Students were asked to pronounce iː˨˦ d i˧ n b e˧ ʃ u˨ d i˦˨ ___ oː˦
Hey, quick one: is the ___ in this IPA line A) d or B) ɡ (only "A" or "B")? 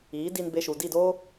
A